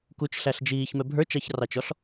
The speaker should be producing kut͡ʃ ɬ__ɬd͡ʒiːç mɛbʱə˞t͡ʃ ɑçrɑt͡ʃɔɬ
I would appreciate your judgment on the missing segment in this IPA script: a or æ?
æ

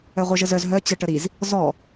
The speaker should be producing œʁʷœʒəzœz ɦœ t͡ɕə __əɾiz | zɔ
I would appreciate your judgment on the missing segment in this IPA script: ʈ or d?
ʈ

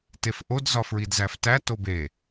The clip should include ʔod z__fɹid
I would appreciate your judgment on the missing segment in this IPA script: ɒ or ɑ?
ɒ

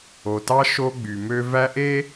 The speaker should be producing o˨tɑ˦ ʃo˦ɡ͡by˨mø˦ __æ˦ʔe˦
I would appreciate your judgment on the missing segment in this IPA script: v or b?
v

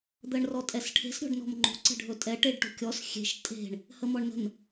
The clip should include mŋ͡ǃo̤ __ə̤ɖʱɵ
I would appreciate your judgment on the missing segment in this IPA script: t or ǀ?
ǀ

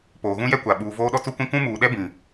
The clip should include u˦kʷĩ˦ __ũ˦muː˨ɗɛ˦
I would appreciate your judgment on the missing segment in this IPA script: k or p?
k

